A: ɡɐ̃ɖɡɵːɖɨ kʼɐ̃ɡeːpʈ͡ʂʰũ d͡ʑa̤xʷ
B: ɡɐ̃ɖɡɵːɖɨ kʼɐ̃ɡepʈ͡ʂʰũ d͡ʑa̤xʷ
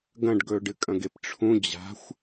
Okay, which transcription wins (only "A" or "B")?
B